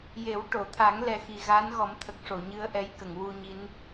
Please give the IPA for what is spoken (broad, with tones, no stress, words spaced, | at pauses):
je˨˩˦w ʈo˨˩˨t̪ʰa˨˩˦ŋ lɛ˨˩ xi˨˩ɣaː˧˥nɣɔ˨˩˦mt̪ʰə˨˩k̚ ʂo˨˩˨ɲɨ˧ə̯ ʔɛ˧˥jkə˨˩˨ŋwu˧ɲi˧˥n